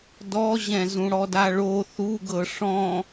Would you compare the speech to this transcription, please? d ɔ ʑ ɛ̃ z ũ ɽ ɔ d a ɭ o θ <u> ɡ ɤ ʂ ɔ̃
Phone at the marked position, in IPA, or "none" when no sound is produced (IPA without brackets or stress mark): u